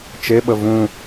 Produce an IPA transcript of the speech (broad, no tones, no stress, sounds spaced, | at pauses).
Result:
t͡ʃ e ɓ ə v ũ